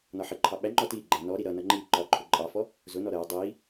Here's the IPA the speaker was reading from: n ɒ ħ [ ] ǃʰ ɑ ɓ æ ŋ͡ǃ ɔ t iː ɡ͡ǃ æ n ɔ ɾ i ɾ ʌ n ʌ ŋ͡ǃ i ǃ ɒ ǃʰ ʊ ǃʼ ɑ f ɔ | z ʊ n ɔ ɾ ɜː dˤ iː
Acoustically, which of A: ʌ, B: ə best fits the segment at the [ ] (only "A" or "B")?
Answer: B